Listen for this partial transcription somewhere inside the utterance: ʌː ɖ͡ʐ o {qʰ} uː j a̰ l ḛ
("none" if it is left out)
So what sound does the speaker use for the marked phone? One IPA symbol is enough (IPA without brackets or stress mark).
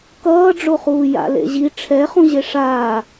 χ